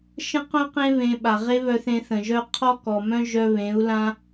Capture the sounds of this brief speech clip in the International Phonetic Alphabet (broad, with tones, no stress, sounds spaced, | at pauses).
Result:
ʃ ə̃˦ q œ̃˦ q ẽ˦ β ẽ˧ ɓ a˨ ʁ e˦ β œ˧ θ ẽ˧ θ ə̃˨ ʒ œ˦ qʰ ɔ˦ k ɔ˨ m œ̃˦ ʒ œ˧ β ẽ˨˦ u̯ l ã˦